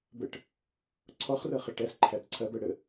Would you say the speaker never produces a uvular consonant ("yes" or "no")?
no